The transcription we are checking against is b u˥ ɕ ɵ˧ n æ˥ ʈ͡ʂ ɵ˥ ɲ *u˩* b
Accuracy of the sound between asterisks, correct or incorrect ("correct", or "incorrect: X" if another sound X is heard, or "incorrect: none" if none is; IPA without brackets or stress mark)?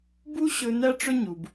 correct